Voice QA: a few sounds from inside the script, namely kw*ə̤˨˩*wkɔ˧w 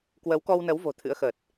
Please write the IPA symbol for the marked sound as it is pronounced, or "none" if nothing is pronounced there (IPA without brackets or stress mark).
ə˨˦